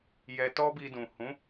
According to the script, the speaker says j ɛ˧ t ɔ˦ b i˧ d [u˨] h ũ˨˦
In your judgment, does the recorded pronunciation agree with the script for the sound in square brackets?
no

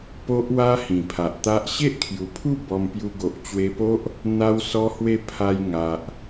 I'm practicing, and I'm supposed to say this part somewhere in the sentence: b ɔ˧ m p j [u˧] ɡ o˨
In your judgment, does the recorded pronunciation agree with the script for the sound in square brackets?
yes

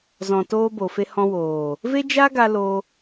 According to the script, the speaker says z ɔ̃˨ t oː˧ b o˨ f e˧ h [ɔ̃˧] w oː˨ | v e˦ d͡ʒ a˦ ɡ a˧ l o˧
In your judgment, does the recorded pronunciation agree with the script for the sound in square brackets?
yes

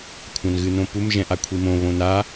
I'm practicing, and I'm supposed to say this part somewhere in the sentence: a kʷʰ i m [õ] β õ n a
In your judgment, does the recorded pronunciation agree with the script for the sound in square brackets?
yes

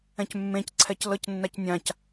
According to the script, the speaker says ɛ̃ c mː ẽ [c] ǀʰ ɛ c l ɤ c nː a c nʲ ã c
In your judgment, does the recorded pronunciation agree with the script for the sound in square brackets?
yes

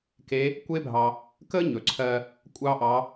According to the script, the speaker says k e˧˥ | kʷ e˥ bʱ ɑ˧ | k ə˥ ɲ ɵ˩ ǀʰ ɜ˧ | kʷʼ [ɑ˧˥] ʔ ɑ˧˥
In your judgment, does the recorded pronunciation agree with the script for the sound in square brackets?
no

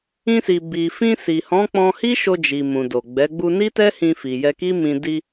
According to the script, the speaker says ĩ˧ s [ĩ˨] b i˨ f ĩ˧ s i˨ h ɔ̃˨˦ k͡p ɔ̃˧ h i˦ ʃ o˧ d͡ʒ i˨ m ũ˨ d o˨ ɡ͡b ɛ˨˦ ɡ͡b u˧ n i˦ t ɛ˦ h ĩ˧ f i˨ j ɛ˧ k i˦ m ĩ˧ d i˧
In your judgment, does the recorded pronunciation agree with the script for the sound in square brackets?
no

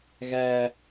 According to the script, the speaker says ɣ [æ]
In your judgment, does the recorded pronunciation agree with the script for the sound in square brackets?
yes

